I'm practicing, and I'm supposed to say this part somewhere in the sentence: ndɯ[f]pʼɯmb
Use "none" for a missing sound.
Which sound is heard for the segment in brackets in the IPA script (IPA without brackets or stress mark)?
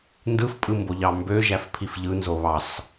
f